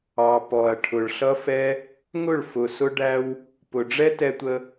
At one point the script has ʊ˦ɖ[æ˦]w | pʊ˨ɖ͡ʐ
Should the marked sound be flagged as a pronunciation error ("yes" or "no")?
no